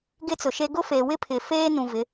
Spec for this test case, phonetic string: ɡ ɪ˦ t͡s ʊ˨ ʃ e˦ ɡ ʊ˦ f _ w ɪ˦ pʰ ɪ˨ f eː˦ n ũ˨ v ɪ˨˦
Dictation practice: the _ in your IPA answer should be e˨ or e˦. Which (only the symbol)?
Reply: e˨